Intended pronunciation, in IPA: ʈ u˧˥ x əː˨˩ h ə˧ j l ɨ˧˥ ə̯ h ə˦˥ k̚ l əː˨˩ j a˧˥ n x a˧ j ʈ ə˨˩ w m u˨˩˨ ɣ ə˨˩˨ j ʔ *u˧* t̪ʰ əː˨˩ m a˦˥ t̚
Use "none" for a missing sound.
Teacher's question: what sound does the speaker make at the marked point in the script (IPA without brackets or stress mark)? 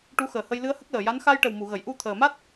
u˧